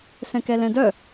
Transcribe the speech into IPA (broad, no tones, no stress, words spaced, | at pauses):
sɛ̃kɛlɛ̃dœ